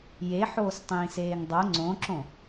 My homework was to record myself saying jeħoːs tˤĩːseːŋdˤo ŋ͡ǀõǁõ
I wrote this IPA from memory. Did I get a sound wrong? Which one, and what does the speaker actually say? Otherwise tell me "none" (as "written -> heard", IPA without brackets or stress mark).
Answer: none